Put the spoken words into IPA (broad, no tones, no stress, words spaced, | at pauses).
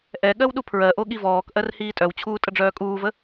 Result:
ʔɛ ɠɜwɗupʰɹɜʔo ɠivɔːkʔɜr hiːtʼœwt͡ɕʰuː tʼəɖ͡ʐœːkʼuːvə